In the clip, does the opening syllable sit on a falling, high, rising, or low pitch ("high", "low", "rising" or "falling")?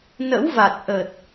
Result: rising